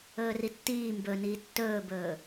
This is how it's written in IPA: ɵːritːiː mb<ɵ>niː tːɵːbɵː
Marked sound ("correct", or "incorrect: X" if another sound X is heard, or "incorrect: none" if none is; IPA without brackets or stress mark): correct